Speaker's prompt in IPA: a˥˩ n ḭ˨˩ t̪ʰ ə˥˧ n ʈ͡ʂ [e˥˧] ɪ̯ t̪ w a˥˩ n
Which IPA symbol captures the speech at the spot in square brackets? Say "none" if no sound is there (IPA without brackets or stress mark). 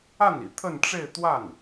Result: e˥˧